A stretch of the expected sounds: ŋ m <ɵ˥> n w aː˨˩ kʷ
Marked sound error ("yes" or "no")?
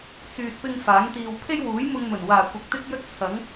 yes